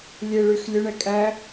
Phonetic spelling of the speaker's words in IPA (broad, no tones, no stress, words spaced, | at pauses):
lʲeɭyx lʲɵɳɛ kʼæ